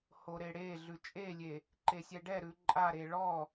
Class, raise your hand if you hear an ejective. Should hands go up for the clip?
yes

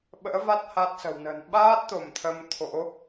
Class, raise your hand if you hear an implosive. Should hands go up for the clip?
yes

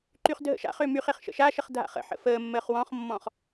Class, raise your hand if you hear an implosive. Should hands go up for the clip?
no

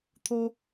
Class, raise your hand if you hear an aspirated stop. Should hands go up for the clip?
yes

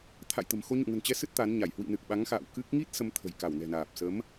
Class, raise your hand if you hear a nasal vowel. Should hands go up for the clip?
no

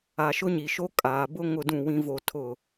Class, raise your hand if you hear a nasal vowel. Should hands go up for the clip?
yes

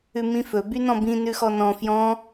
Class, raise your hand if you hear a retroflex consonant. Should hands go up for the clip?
no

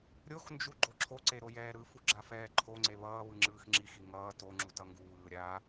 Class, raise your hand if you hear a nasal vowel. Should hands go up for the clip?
no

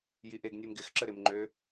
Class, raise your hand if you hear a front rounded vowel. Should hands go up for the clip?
yes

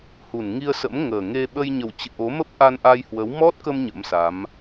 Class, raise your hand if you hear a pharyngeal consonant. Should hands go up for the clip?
no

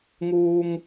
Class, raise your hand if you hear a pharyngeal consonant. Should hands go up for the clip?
no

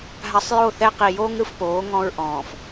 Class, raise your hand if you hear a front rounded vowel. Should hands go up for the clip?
no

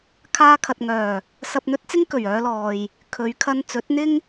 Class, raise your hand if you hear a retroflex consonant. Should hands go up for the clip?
no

